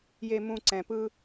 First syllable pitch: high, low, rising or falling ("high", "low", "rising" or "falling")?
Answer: high